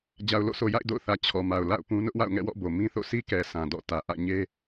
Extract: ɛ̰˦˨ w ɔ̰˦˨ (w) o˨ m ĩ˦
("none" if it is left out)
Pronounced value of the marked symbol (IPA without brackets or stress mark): b